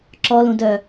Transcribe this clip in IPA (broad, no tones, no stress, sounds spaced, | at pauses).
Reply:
ǁ ɔ l ũ d œ